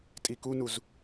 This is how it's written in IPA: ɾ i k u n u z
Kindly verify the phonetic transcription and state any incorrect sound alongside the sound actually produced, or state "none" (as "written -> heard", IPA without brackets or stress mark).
ɾ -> tʼ